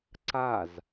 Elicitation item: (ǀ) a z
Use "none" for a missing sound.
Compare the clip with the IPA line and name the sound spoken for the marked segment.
ǀ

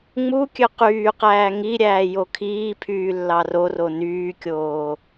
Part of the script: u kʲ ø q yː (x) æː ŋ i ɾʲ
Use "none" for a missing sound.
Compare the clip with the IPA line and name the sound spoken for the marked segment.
q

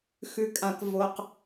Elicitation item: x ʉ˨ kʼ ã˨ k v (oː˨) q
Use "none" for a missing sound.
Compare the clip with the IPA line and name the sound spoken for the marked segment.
o˨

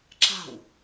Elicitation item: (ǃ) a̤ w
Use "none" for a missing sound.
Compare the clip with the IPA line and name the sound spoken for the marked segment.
ǁ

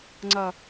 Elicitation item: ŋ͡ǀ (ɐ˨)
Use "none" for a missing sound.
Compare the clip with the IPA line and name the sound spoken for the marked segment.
ɐ˨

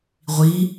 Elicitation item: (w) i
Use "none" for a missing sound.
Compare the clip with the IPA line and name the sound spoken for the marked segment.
ʁʷ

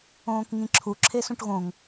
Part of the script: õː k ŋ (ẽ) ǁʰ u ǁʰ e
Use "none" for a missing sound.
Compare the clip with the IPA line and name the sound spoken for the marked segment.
ĩ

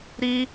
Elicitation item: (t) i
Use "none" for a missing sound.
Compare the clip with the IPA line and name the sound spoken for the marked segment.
ɾ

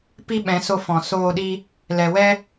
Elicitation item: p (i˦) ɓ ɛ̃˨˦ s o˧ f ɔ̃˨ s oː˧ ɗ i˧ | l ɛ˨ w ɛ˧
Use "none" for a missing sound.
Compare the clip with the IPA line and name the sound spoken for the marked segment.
i˦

